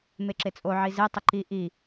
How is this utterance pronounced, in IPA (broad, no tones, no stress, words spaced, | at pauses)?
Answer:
meǁet͡sʼo ʕize tˤəǃi ʔi